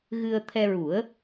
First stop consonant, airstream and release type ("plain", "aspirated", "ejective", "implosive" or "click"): aspirated